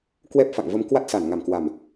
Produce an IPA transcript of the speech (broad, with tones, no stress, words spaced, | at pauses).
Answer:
kwɛ˦˥p̚fa̰˧˨ŋvə˧m kwa˦˥t̚sa˧˩nŋa˧˩mkwa˨˩m